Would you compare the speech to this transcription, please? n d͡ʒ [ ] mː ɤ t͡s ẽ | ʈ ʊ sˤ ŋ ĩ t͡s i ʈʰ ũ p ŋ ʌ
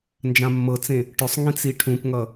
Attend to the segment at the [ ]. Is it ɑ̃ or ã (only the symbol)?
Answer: ã